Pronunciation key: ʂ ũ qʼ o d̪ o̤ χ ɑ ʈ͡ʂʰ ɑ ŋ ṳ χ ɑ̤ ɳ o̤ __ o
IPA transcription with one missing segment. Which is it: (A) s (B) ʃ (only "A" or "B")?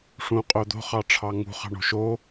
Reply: B